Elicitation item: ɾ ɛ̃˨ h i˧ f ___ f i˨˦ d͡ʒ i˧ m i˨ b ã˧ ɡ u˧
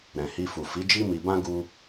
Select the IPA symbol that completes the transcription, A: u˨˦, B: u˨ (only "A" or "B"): B